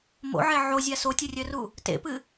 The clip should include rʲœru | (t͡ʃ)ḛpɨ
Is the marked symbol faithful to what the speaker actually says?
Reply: no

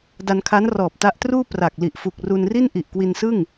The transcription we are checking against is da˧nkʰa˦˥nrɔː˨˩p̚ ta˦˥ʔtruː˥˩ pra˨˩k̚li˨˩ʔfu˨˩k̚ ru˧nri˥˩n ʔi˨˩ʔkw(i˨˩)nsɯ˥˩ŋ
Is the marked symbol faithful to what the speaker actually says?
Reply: no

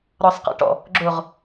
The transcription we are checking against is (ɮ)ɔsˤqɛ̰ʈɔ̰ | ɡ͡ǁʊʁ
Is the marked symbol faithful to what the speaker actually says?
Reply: no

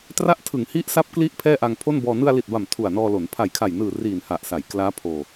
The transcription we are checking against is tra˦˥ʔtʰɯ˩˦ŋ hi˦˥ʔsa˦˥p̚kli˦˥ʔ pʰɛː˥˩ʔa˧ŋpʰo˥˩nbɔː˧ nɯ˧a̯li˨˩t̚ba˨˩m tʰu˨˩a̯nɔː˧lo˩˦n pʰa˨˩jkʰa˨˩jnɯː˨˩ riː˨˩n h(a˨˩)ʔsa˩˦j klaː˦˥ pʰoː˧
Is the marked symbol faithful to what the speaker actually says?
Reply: yes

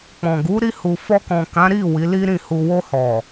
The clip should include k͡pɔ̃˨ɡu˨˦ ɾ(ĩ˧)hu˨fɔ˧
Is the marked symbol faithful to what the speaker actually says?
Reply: no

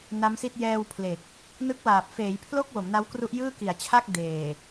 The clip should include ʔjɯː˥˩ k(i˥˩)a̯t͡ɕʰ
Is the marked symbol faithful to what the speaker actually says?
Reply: no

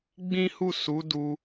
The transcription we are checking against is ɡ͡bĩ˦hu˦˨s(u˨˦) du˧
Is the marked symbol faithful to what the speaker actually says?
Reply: yes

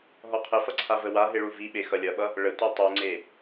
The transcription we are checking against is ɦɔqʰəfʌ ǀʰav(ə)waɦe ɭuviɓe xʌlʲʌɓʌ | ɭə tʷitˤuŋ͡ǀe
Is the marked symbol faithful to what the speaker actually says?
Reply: yes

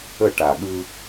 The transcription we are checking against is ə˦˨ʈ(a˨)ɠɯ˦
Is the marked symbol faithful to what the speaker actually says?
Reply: yes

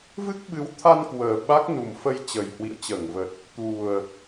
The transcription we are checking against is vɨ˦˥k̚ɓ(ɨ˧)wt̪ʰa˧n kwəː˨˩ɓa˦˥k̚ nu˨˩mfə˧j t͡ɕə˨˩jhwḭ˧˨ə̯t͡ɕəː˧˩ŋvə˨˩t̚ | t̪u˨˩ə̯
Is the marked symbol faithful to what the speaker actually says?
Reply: no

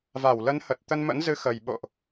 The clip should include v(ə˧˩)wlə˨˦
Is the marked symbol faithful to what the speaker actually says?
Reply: no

